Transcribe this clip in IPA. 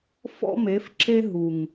f ɔ̰˦ m e˨˦ f ǁ e˦ ɦ u˨ ŋ

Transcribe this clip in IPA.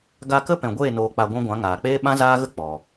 ɡ a˧ k ə˦ p ɛ̃˨ ɡʷ eː˦˨ n oː˧ k͡p a˧ ɡʷ ũ˦ ɡʷ ã˨˦ ŋ aː˨ k͡p eː˦ ɓ ã˦ z aː˦ ɣ ə˦ k͡p ɔ˨

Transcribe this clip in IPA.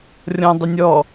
rʲ ɔ̃ dˤ ɪ nʲ ɔ

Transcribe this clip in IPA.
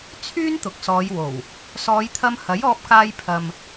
t͡sʰ yː˥ n t̪ ʊ˨ k̚ s ɔː˨˧ j w o˨˩ w | s ɔː˨˧ j t̪ʰ ɐ˧ m h ɐ˨˥ j ɔː˧ p̚ k aː˧ j pʰ ɐ˨ m

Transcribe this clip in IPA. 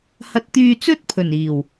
h ɐ˧ t̚ t̪ yː˧ t͡s ɵ˥ t̚ pʰ ɵ˨˩ n iː˨˩ w

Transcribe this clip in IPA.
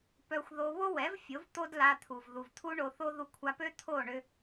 p œ˧ xʷ ð o˧ β o˦ w ɛ˨˦ v fʲ o˨˦ v t̪ o˦ d l a˧ t̪ʰ u˨ v ð u˨ v t̪ʰ u˦ ɳ o˧ θ o˦ ð u˧ kʷʰ a˧ p ø˦ t̪ʰ o˦˨ ɳ ʏ˧

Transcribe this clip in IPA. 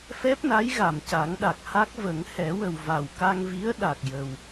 f ɛ˦˥ p̚ n a˧˥ j ɣ a˨˩ m c a˨˩˦ ŋ ɗ a˨˩ k̚ h a˦˥ k̚ v ə˨˩˦ ŋ h ɛ˨˩˦ w ə˨˩ w v a˨˩ w k a˧ ŋ v i˧˥ ə̯ ɗ a˨˩ k̚ j ə˨˩ w

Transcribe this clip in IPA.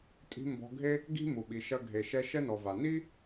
tʼ i̤˧ m b ɔ̤˧ ɡʱ e˦ | ɡ i̤˦ m u˨ ɓ i˨ ʃ ɐ˧ ɡʱ e˨ ʃ ɛ˧ ʃ ɛ˦ n ɔ˨ v a˨ n i˦

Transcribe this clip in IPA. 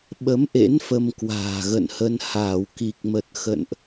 ɓ ə˨˦ m ʔ ḛ˧˥ n f ə˧ m k w a̤ː˨˩ ɣ ə̰˧˨ n h ə˧ n h aː˧˩ w k i˨˩ k̚ m ə˨˩ t̚ x ə̰˧˨ n ʔ

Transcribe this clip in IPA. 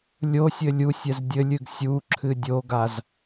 lʲ o sʲ ɘ lʲ u sʲ ɛ z dʲ ɘ lʲ ɨ ɡ sʲ u ǁʰ ɨ dʲ o ɡ a z

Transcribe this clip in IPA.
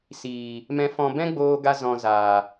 s iː˨ | m ɛ̃˧ f ɔ̃˧ b ɛ̃˦ ɡ͡b oː˦ ɡ a˦ z ɔ̃˧ z aː˨

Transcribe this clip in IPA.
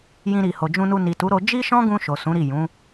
j ĩ˧ ɾ i˨ h o˨ d͡ʒ ũ˧ n u˧ n i˨ t u˨˦ ɾ o˧ d͡ʒ i˦ ʃ ɔ̃˦ ɡ ũ˧ ʃ o˨ s ũ˨˦ ɾ i˦˨ j ũ˨˦

